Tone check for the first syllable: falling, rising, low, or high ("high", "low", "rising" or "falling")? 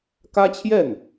high